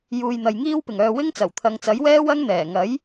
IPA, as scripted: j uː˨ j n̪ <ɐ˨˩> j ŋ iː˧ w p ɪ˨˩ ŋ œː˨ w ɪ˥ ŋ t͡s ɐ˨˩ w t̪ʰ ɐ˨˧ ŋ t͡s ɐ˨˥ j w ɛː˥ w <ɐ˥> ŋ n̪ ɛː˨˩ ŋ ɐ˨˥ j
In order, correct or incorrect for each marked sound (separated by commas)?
incorrect, correct